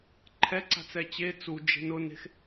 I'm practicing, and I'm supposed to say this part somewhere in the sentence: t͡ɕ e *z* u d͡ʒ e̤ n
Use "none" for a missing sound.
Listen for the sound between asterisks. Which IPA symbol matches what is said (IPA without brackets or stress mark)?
t͡s